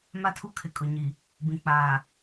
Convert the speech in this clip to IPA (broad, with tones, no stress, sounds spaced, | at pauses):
m a˦ tʰ u˦ kʰ ɪ˨ kʼ ʊ˨ ɲ i˨ | b ĩ˨ k͡p aː˨